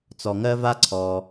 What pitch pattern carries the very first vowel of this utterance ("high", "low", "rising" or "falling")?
low